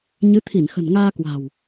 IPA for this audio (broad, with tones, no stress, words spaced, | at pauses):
ɲɨ˨˦t̪ʰi˧˩nxə̤˨˩n ŋaː˧kwa̤˨˩w